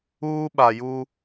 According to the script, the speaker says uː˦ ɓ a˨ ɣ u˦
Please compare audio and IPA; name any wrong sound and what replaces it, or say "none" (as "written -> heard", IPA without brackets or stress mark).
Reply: ɣ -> j